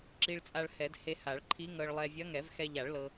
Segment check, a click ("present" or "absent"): present